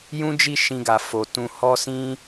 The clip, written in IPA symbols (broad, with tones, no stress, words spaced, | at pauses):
jũ˦d͡ʒi˦˨ ʃĩ˧ɡa˨ fo˨tũ˧ hɔ˦sĩ˦